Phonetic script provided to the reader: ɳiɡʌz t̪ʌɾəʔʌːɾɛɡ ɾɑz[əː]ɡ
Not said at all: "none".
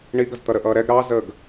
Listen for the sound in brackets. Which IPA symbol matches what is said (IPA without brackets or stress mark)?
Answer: əː